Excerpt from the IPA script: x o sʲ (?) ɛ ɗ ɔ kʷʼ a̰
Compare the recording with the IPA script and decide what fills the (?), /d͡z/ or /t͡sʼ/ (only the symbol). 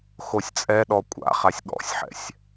t͡sʼ